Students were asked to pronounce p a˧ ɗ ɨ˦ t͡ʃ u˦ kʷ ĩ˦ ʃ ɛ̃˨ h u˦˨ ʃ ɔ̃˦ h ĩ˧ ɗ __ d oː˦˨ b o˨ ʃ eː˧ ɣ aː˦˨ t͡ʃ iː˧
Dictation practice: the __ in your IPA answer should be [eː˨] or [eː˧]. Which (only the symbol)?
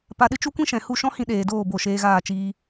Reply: eː˨